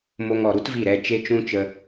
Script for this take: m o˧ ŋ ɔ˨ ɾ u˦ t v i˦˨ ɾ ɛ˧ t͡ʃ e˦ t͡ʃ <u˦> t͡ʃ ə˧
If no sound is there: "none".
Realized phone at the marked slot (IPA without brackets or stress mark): ũ˦